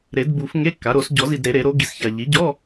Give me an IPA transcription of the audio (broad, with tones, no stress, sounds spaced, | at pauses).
ɾ e˨˩˦ d b u˨˩˦ f ŋ e˧˥˧ kː a˩˥ ɾ o˨˩˦ s ɟ ɔ˨˩˦ z i˨ d ɾ e˨˩˦ ɾ e˨˩˦ ɾ o˩˥ ɡ i˨ s ç a˨ ʎ i˩˥ ɟ ɔ˧˥˧